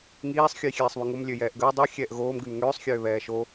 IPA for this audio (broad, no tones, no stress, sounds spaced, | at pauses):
ŋ iː sˤ xʲ ʉ j xʲ ɛː sˤ β ʉ ŋ o m lʲ ø j ɛː ʔ ɡ ə j dˤ ʉ xʲ ɛː ʔ ɣ oː m ɡ ʉ m ŋ øː sˤ xʲ øː β ɛː ʃ o